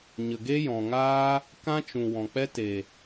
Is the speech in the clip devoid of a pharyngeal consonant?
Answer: yes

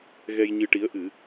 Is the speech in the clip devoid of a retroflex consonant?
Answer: no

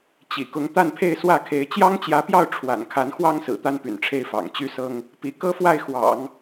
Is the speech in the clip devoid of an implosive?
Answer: yes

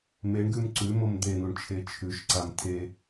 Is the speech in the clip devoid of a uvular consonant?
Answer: yes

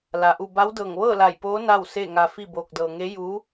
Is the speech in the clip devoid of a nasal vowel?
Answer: yes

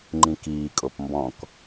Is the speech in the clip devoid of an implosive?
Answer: yes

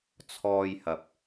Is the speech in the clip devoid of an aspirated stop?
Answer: no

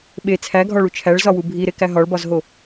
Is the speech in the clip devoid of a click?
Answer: yes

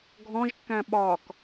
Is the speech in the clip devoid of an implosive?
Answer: no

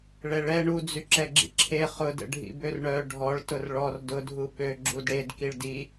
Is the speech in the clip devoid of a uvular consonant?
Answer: no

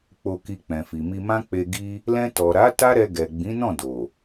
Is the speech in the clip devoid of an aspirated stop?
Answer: yes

